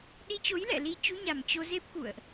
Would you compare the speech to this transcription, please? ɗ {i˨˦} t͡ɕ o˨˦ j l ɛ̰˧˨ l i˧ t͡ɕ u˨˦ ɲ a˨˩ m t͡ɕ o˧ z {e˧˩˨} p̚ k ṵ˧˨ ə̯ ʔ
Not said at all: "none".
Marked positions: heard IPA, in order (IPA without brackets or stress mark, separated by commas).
i˧, e˦˥